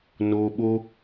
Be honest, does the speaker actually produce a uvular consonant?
no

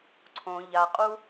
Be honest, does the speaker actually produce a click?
yes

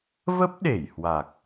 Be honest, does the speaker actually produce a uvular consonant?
no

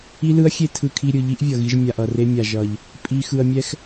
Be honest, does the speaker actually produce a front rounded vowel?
no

